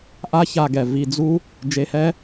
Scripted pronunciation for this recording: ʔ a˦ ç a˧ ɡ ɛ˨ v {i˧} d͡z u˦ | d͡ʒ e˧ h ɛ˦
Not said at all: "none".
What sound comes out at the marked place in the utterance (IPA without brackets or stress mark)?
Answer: i˧